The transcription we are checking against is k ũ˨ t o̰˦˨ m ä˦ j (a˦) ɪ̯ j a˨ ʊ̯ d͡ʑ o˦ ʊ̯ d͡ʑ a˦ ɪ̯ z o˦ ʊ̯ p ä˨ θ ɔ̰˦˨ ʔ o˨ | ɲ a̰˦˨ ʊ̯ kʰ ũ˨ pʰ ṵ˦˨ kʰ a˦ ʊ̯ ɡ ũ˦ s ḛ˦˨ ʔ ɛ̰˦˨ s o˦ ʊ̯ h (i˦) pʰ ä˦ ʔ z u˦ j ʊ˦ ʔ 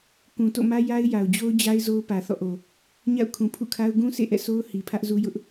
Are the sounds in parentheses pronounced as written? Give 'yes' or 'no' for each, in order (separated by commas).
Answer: yes, no